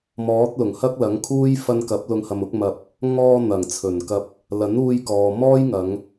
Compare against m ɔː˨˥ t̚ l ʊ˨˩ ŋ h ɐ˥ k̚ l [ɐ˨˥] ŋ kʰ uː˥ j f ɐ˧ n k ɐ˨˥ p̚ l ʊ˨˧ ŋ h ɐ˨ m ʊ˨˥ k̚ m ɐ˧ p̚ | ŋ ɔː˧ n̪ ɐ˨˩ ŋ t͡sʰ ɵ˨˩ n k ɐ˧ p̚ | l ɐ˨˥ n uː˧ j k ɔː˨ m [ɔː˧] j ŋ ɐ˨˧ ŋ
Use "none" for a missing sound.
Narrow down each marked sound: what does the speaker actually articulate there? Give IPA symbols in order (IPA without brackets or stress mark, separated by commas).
ɐ˨˥, ɔː˥